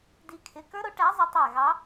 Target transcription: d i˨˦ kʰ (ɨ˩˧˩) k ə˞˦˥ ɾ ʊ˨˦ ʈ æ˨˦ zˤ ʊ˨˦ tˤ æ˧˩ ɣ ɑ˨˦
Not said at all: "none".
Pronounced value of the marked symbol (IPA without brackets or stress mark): ɪ˩˧˩